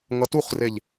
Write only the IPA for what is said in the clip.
ŋ ʌ t u χ r e ʎ

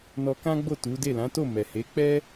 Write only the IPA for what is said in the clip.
n ɔ˧ k ã˦ ɡ͡b o˦˨ t u˨˦ d e˦˨ l ã˨˦ t o˦˨ m ɛ˨ h e˨˦ k͡p ɛ˦

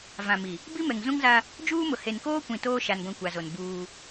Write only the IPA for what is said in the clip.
v ã˨ m i˨ | b i˦ m ɛ˨ ŋ z ũ˦ ŋ z a˦ | d͡ʒ uː˦ m ʊ˨ h e˨ n k oː˦ kʷ ĩ˨ t oː˦ ʃ a˨ n ɡʷ ĩ˨ kʷ a˨ z o˨ n b uː˦

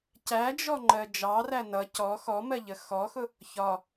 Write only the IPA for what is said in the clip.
c æ d͡ʒ ɔ ŋ͡ǃ ɜ d͡ʒ ɑ r æ n ʌ c ɔ x ɔ m ɜ ʎ ə x ɔ x ʊ | ç ɒ

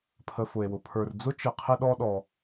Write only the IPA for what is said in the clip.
pʰ ə˨ f ʊ˩ e̯ w ʊ˩ pʰ ə˞˨ r d͡z ʊ˦ t͡ʃ ɪ˨ qʰ ɪ˦ ɗ ɔ˦ ɗ ɔ˨

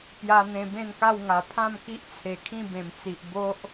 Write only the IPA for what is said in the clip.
p j a˧ n̪ ẽ˧ b ẽ˥˧ n k a˥˧ w ŋ a˨˩ pʰ ã˥˧ m k i˦ ʔ t͡sʰ e˨˩ kʰ ĩ˥˧ b ẽ˨˩ m t͡s i˨ ʔ b o˦ ʔ

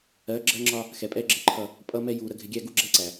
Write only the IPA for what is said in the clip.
ɜ˨˦ ɡ͡ǁ ɜ˦ ŋ͡ǁ ɒ˦ | x ɛ˨ pʼ ɛ˦ ɡ͡ǁ ɪ˦˨ ǃʰ ʌ˦˨ | pʼ ʌ˦ m ɛ˦ j u˨ ɾ ə˨ ɡʱ ɪ˨ ɡʲ æ˦˨ ɡ u˦ ɡ͡ǁ ɛ˦ ǀ æ˨

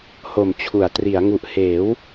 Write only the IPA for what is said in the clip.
h o˨˩ m t͡ɕʰ u˩˦ a̯ t r i˩˦ a̯ ŋ u˨˩ ʔ h eː˩˦ w

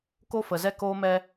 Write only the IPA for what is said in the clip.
k o˦ f ə˨ z ɛ˦ k oː˦ m ɛ˦

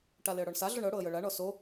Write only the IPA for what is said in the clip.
ʈ a l ɪ ə̯ ɽ ɔ ɳ s a ɮ o ɳ ɤ ɽ o ə̯ j ɤ ɭ a ɳ ɔ s o

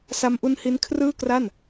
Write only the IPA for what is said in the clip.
s a˦˥ m ʔ u˦˥ n h i˦˥ n kʰ r ɯː˥˩ k r a˥˩ n

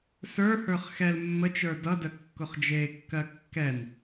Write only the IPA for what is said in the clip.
s ə˞ h ə˞ χ x ɛ l mː ə t͡ʃ ə˞ d ʌ d ə kː ʊ χ d͡ʒ e kː ɜ kː ɛ n

